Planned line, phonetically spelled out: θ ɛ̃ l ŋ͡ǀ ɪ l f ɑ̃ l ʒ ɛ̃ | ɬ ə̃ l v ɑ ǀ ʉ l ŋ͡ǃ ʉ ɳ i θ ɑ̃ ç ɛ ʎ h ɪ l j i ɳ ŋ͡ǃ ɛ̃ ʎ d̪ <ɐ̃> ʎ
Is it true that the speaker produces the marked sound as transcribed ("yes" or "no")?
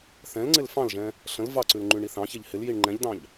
no